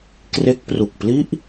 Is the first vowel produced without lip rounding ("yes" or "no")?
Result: yes